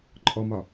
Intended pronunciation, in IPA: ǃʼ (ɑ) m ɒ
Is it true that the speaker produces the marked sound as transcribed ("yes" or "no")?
no